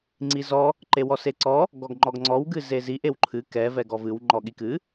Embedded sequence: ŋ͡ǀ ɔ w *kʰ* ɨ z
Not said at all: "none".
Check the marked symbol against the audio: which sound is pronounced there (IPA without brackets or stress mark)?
ɡ